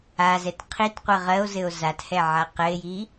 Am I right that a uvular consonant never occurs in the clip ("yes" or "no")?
no